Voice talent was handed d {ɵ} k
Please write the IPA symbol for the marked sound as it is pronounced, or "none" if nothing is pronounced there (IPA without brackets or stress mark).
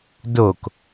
o